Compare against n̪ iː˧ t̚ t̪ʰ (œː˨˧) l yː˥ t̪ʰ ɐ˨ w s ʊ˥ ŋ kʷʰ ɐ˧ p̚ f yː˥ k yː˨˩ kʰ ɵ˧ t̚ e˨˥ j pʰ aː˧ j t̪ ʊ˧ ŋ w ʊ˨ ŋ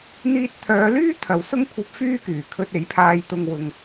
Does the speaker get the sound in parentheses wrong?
no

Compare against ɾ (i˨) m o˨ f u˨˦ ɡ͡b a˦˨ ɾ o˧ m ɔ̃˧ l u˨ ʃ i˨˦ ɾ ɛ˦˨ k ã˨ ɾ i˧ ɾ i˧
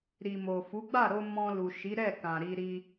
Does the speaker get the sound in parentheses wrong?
no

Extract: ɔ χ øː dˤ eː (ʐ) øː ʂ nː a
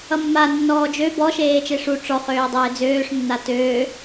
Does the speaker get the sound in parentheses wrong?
yes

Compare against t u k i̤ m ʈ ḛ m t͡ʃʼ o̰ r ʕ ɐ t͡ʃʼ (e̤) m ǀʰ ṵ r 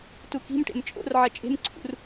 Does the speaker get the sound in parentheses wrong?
no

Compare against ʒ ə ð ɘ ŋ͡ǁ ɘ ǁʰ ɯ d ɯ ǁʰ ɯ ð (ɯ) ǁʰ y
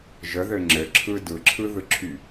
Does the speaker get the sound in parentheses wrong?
no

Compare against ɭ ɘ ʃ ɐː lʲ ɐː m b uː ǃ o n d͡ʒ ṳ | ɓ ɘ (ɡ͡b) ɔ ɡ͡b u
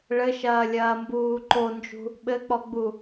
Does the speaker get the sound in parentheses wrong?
yes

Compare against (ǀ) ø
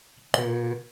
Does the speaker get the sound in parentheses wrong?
yes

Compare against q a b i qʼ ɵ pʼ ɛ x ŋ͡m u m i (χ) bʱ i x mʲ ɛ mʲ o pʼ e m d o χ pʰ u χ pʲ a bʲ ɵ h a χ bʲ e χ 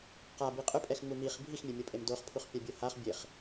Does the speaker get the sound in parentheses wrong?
no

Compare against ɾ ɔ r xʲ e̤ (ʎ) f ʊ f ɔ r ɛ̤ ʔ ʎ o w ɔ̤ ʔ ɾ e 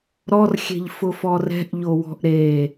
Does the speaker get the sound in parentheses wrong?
no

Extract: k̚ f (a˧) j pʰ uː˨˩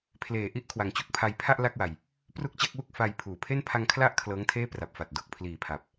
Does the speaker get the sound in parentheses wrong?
no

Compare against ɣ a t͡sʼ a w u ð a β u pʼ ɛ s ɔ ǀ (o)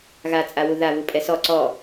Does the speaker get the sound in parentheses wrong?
yes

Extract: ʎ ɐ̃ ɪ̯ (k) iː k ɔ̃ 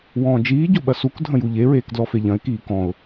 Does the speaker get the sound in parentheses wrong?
no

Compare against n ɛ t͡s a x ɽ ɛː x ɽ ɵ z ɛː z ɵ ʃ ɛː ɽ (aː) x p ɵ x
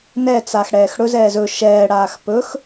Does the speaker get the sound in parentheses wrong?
no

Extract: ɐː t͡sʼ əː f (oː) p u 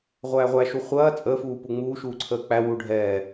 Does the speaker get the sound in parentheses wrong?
yes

